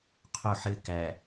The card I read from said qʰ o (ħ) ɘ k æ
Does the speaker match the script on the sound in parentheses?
yes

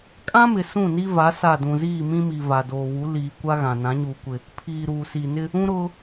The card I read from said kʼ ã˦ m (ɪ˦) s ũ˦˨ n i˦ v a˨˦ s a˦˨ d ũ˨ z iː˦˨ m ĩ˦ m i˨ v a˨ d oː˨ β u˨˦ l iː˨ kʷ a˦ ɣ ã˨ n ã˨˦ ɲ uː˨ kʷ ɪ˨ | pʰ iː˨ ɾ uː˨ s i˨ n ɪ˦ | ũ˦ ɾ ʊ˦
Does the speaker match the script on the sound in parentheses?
no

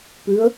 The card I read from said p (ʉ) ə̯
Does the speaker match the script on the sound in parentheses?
yes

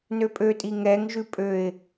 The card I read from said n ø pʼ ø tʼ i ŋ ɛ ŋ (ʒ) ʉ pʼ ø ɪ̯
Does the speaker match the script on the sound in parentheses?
yes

